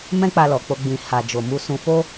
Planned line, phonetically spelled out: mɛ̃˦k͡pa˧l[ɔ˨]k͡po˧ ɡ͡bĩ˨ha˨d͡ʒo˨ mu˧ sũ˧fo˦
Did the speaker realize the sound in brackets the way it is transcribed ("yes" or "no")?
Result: yes